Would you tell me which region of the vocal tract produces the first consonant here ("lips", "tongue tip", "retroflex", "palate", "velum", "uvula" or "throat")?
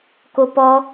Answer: velum